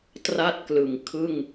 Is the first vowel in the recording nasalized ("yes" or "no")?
no